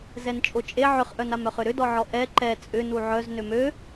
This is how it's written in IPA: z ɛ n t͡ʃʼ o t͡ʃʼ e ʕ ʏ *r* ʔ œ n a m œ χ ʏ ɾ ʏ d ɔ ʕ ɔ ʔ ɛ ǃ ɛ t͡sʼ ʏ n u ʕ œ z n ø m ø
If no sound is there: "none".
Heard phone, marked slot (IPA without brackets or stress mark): χ